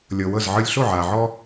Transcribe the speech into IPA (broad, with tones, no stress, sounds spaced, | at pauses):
lʲ ɤ˨ w ɤ˦˨ z ʕ ɯ˦ lʲ ɬ o˦˨ ʕ aː˨ ʕ ɔ˦